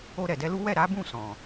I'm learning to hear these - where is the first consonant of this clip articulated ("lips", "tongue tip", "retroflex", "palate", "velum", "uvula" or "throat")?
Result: tongue tip